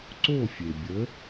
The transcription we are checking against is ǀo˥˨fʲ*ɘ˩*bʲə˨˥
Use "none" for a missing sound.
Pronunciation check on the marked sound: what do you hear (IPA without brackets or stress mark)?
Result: e˩